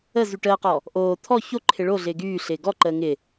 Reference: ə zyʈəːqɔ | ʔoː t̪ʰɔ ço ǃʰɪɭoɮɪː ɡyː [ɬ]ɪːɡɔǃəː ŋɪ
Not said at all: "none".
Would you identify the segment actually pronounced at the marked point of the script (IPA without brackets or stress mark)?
ɬ